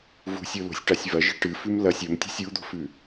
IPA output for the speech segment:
v ṳ sʲ o l o̤ sʲ ʈ a sʲ v ɐ ʒ i̤ ʈ ɨ f ʉ m l ɐ sʲ ɵ m tʲ o̤ sʲ u d̪ o̤ f ʉ

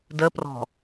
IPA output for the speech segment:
d ə p r ɔ̤

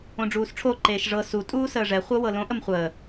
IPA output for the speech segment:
õ ɖ͡ʐ uː s ʈ͡ʂʰ o ǃ eː ʃ ʐ ɤ s u tʼ uː s əː ʐ ɛ χʷ ɤ w ɤ l õ ʔ ə m χʷ əː

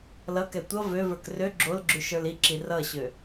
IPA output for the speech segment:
l ʌ k ɛ tʷ ʌ v ø v ə˞ k r ø ɡ͡ǁ o l ɡ͡ǁ ʉ ʃ ə˞ l i ǁ i r ʌ ɕ ø

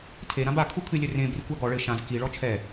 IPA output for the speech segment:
tʰ e ɾ ã b a kʰ u kʰ ɨ lʲ ɘ r ẽ b r i kʷ a ɡ ɔ ɭ ɘ ʃ ã z k i ɭ ɔ t͡ʃʰ ɛ

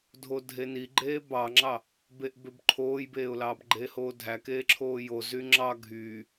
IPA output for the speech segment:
dʱ o dʱ e n i ɡ͡ǃ eː b ɑ ŋ͡ǁ ɑ | b e ʔ b ø b ǃʰ oː j b eː ʊ̯ l ɑː b ɡ͡ǃ eː h oː dʱ æ k eː ǁʰ oː j o z y ŋ͡ǁ ɑ ɡʱ y

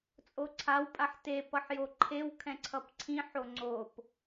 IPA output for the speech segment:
t͡sʼ o ǀʰ a w pʼ a ħ t e p ʌ ħ j o ǃʰ e w kʰ ɛ̃ ǀʰ ʌ p ǀʰ ĩ ħ o ŋ͡ǀ o p

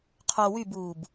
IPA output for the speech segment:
qʰ o w y b uː b

